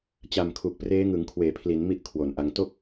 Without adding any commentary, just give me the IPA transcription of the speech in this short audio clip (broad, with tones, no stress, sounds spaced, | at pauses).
t͡ɕ a˨˩ m kʰ u˨˩ k̚ p r eː˦˥ ŋ ɯ˩˦ ŋ kʰ w eː˩˦ pʰ l i˩˦ n m i˥˩ ʔ kʰ w o˨˩ n ʔ a˧ ŋ t o˥˩ k̚